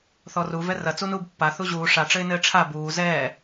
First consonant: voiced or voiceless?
voiceless